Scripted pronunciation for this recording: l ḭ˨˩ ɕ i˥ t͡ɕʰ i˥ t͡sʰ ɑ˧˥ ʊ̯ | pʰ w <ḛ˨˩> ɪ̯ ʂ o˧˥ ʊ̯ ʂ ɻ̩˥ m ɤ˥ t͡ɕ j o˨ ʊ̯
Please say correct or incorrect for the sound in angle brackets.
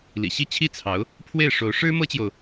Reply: incorrect